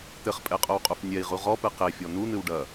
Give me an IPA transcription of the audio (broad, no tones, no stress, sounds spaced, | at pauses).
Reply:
t̪ ɘ χ pʼ ɛ qʼ o w qʼ u f nʲ ɛ i̯ ʁ u ʁ ɔ p ɨ q e fʲ ɔ n̪ u n̪ ɨ w ɖ ɐ